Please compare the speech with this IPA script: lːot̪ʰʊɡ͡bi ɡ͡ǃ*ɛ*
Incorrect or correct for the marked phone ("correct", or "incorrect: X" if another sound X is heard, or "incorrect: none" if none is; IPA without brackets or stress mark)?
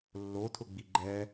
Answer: correct